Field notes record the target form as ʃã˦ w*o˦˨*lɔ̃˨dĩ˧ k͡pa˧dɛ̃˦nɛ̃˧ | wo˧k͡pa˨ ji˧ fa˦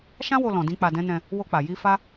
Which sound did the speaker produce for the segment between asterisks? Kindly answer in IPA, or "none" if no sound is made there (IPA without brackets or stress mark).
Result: o˧